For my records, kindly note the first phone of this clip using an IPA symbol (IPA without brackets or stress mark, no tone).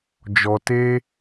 d͡ʒ